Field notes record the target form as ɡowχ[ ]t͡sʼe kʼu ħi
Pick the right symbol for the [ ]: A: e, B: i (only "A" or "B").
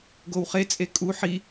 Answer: A